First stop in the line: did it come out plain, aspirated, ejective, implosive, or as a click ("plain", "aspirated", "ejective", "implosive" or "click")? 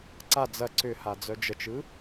click